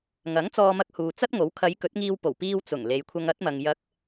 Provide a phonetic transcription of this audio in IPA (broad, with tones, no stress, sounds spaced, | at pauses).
ŋ ɐ˨˥ ŋ t͡s ɔː˧ m ɐ˧ k̚ h uː˨ t͡s ɐ˥ t̚ ŋ o˨˥ w kʰ ɐ˨˧ j k ɵ˨˥ t̚ ŋ iː˧ w p o˨˩ w p iː˧ w t͡s ʊ˨˩ ŋ l e˨˧ j kʷʰ ɐ˧ ŋ ɐ˨˥ t̚ m ɐ˨ ŋ j ɐ˨˥ k̚